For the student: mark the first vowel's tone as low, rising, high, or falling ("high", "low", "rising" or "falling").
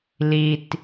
low